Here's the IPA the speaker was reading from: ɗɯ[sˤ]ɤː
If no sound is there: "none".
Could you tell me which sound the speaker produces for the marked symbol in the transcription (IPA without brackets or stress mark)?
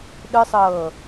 sˤ